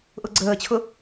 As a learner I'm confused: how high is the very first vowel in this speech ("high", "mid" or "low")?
high